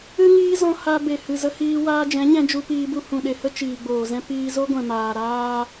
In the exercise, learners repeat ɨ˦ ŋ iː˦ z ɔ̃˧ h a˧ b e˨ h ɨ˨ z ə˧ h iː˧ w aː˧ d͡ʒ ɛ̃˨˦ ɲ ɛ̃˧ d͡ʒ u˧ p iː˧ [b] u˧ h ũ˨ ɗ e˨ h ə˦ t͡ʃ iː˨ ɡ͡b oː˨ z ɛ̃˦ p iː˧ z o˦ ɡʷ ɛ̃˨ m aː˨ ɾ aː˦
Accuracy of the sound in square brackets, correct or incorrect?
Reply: correct